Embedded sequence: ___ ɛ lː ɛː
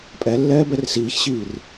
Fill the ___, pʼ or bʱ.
pʼ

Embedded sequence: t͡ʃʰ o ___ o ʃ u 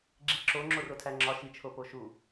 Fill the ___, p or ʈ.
p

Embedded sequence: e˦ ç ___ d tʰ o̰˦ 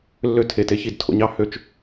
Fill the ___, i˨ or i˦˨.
i˦˨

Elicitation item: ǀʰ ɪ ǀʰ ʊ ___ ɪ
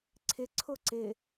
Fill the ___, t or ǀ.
ǀ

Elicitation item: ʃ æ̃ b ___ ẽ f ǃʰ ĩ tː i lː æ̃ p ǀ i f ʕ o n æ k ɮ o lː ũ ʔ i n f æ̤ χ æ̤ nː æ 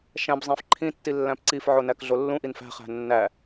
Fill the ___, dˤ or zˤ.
zˤ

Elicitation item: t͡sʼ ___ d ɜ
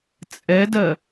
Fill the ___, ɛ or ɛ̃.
ɛ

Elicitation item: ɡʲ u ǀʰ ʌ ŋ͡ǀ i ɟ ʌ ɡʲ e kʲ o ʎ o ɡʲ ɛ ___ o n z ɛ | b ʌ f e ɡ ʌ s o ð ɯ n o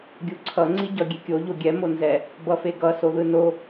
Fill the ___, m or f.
m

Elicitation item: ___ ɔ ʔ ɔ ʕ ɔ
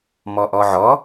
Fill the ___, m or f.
m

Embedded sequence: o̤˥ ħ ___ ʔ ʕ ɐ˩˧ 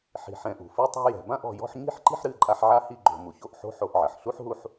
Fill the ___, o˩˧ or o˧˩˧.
o˧˩˧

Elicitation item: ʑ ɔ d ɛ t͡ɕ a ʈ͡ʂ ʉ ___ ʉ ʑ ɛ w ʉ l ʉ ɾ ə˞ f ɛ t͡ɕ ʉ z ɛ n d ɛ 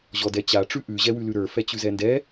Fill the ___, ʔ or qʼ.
ʔ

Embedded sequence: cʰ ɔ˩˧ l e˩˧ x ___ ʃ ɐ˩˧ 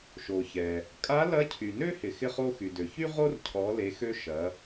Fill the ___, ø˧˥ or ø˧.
ø˧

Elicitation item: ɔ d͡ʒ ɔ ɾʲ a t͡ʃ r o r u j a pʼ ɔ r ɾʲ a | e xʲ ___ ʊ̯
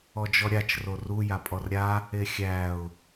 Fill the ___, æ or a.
æ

